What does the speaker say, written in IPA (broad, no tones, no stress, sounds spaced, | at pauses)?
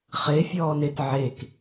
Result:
χ e fʲ ɔː n e t ʕ e k